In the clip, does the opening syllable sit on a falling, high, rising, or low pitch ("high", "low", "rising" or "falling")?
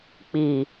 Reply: low